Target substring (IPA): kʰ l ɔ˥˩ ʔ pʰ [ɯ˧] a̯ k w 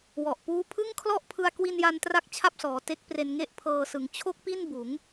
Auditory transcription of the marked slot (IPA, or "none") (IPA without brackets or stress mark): ɯ˧